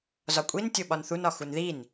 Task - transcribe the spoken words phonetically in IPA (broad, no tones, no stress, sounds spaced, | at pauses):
z ɒ kʷʼ i n tʲ o ɓ ɒ n θ u n ɒ x u n ð i n